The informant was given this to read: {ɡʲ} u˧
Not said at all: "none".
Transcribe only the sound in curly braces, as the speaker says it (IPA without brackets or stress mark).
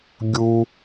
ɡʲ